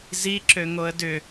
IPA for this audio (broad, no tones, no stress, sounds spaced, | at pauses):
z i ǁ ø ŋ o ə̯ d ʏ